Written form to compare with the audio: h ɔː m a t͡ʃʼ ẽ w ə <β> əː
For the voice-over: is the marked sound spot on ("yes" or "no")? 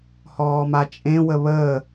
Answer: yes